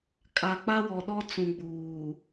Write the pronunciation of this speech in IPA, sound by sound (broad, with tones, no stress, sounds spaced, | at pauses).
kʼ a˨ k͡p a˦ w ɔ˨ ɗ ɔ˦ t͡s ũ˨ ɡ͡b uː˨